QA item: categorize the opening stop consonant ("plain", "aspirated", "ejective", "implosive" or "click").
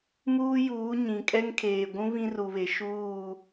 ejective